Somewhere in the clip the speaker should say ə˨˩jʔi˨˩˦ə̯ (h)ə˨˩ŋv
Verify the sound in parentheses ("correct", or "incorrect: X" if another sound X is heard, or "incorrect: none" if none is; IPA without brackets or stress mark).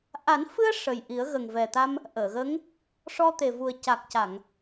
incorrect: ɣ